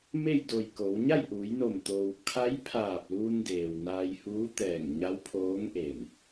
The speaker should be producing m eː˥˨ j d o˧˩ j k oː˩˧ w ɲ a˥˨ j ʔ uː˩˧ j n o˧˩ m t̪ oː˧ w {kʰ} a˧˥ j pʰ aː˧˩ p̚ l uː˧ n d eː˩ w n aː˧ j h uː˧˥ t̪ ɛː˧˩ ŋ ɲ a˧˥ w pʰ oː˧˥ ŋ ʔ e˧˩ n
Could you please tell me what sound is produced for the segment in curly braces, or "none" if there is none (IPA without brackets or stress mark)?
kʰ